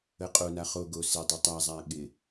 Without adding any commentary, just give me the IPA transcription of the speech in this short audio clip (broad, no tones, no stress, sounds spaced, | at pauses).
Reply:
ə qʼ o n a χ o ɡ o s e dˤ o tˤ a zˤ a ɠ ɪ